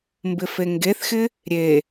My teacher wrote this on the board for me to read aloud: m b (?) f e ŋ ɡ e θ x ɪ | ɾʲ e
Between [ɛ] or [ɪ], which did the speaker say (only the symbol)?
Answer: ɪ